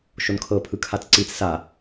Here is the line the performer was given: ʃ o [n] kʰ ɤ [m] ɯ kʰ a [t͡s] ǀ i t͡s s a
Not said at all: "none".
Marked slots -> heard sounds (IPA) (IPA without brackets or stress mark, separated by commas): n, pʰ, t͡s